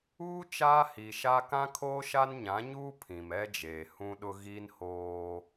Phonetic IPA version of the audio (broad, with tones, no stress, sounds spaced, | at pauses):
uː˦ t͡ʃ aː˦ h i˨ ʃ a˦ k ã˦ kʰ oː˦ ʃ a˦ n ɲ ã˨˦ ɲ uː˦ pʰ ĩ˨ m ɛ˦ d͡ʒ eː˨ h ũ˦ ɗ ʊ˦ ɣ i˦ n h oː˦